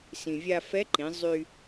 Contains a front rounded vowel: yes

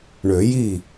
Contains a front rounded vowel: yes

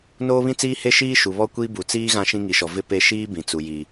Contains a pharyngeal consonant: no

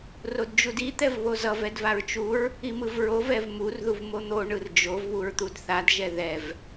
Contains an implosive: no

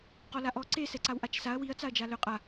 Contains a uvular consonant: yes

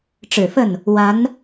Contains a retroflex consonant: yes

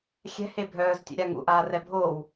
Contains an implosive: no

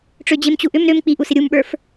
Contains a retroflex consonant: yes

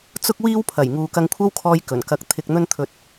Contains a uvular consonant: no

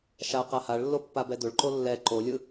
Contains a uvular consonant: yes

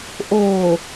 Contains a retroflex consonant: no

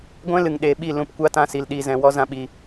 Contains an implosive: yes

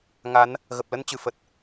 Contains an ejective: no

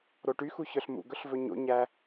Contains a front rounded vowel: yes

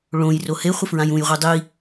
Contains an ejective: no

